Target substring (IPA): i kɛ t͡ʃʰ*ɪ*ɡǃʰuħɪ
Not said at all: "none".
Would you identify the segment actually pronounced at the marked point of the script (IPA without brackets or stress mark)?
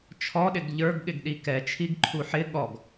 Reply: i